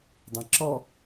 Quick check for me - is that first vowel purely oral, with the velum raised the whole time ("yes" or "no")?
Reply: no